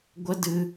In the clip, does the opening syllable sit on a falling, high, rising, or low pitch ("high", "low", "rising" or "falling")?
high